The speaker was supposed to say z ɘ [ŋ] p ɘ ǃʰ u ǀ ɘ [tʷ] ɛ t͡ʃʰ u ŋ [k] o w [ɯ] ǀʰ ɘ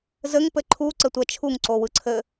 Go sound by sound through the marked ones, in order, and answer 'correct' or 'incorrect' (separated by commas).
correct, correct, incorrect, correct